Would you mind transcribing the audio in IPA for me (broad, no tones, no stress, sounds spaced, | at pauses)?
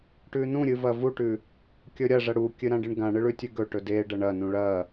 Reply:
ʈ ʉ n ũ ɾʲ ɨ v ɐ v u ʈ ʉ | kʲ ɵ ɾʲ ɐ ʐ ɐ ɽ u kʲ ɨ ɾ ã ɖ ɨ ɳ ɡ ã ɳ ɨ ɭ ʉ tʲ ʉ ɡ ɵ ʈ ɵ d e ɖ ɐ ɳ ɐ n ũ ɭ ɐ